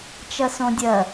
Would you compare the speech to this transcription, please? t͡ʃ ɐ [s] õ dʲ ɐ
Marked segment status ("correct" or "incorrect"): correct